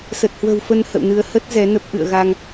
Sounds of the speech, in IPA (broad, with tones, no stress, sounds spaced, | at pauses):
s ə˨˩ t̚ h w ə̤˨˩ w f ə˧ n h ə̰˧˨ w n ɨ˧ ə̯ h ə˦˥ t̚ z ɛ˨˦ n ə˦˥ p̚ ʔ ɨ̰˧˨ ə̯ ɣ a˧ ŋ